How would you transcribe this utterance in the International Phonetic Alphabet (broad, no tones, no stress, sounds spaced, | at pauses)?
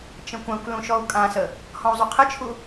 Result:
t͡ʃ ə̃ kʷ ã kʷ l ũ ʃ ɔ u̯ kʼ ã s ə | h ɔ̃ u̯ zˤ u qʰ ə t͡ʃʰ u